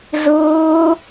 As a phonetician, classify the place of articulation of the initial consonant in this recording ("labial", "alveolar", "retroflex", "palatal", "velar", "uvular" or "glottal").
retroflex